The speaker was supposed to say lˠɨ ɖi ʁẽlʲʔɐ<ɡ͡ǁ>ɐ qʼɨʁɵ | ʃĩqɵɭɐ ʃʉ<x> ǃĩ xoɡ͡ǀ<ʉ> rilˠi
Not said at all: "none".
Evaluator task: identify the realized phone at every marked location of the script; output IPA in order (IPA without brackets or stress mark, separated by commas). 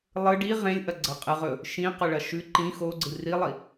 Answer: ɡ͡ǀ, none, ɨ